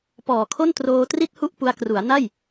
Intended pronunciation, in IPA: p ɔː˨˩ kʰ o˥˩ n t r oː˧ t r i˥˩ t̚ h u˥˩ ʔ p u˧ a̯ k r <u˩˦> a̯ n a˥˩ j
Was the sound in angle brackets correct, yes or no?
yes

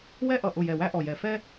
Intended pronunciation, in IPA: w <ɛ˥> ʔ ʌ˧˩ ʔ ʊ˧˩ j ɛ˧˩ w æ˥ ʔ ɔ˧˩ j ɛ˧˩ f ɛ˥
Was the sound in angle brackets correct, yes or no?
yes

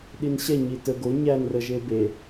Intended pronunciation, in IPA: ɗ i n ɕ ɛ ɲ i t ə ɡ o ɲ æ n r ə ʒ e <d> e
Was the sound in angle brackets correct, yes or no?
no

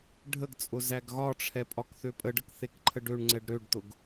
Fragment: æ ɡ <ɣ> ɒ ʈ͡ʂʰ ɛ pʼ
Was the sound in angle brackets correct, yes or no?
yes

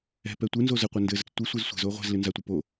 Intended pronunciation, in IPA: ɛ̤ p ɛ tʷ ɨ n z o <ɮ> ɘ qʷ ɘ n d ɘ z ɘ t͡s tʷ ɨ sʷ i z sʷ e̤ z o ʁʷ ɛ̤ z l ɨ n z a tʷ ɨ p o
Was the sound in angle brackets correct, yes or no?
no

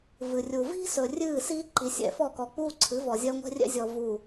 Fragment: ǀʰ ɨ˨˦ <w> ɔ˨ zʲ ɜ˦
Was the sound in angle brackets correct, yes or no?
no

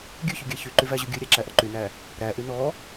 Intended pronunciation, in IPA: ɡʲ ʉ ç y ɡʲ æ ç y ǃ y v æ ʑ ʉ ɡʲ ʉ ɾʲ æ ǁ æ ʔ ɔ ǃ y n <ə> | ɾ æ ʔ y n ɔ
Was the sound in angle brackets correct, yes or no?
no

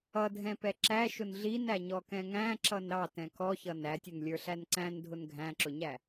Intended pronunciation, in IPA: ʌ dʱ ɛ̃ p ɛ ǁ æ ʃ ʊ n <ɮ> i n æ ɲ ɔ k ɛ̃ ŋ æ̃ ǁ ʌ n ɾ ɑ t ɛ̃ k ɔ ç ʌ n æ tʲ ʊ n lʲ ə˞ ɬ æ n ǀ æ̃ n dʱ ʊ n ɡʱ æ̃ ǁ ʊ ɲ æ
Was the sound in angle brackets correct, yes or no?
yes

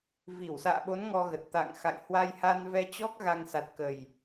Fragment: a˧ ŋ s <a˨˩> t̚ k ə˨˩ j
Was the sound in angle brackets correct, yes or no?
yes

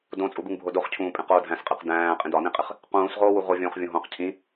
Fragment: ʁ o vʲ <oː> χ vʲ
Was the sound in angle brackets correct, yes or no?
no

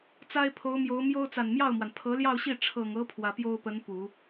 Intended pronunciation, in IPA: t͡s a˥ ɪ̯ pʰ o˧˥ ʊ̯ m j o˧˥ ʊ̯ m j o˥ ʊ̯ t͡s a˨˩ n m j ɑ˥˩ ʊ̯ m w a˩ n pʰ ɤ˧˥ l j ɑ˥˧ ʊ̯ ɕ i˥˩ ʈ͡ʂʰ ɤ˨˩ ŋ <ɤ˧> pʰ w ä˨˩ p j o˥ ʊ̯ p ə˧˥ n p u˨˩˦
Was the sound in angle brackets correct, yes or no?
no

